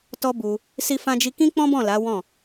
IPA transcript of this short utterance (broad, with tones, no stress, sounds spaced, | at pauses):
t ɔ˦ b u˧ | s i˦ f ã˦ d͡ʒ i˦ k ĩ˦ k͡p ɔ̃˦ b ɔ̃˦˨ l a˨˦ w ɔ̃˦˨